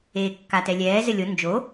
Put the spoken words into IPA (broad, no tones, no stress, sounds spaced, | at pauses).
eː kː a t ɛ lʲ ɛː z ɘ lʲ o n d͡ʒ o